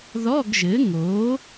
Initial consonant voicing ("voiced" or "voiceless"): voiced